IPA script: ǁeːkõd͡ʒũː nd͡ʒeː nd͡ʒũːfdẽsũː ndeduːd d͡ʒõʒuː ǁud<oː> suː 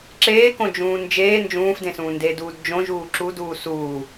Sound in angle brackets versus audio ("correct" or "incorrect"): incorrect